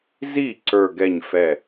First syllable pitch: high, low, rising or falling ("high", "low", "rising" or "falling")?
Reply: falling